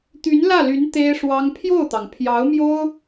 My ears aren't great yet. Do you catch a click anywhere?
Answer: no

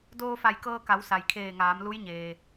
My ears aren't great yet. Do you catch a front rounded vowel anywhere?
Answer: no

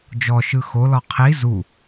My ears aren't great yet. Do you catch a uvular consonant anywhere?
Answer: yes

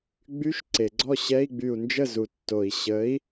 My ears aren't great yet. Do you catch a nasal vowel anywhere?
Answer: no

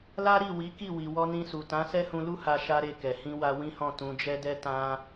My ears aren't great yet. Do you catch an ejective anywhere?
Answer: no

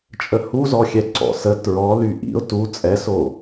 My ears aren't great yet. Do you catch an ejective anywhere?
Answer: yes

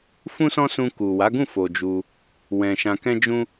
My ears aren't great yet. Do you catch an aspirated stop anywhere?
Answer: no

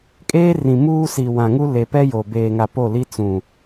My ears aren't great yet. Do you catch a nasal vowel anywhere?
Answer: yes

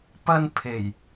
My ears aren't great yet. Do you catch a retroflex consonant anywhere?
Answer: no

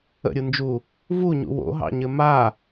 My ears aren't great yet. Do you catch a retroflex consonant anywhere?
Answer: no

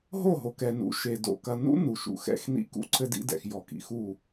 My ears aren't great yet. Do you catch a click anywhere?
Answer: yes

